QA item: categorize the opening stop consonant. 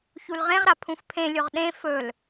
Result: aspirated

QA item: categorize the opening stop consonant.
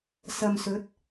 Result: plain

